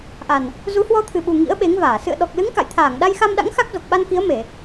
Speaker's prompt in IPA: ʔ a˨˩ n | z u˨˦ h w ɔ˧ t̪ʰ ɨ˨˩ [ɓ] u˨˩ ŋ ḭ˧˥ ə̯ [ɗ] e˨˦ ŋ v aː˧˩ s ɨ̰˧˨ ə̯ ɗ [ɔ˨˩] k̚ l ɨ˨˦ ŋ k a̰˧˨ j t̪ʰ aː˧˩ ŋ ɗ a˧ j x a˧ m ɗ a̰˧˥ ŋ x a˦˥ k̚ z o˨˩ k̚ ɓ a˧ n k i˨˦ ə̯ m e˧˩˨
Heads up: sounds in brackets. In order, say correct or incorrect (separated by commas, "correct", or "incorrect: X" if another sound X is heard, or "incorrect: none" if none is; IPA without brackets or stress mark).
correct, incorrect: ɓ, correct